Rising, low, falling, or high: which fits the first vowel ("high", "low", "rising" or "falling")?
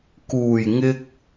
low